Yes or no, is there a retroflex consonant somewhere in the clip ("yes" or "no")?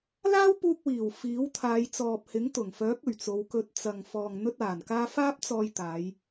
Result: no